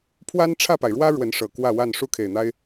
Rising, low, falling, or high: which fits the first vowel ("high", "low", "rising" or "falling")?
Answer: high